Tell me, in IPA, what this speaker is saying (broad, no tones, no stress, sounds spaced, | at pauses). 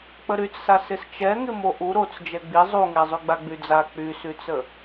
k͡p ə ɾ y t͡s s a s ɪ s t͡ʃ ɛ ŋ ɪ m o ʔ u ɾ o t͡s d͡ʒ ɛ ɡ͡b i zˤ u ŋ ɛ zˤ y ɡ͡b a ɡ͡b y d͡z a k͡p y s y t͡s ə